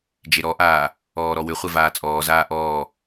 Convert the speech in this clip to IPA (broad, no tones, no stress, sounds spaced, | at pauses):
d͡ʒ e ɾ ɔ ʔ aː | ɔː ɾ ɔ w ʏ χʷ ɛ v aː t͡sʼ ɔː z aː ʔ ɔː